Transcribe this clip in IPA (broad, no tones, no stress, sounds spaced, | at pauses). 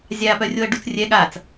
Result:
zʲ a p œ rʲ o ɐ̯ ɖ u t͡s rʲ ɛ ɠ a t͡s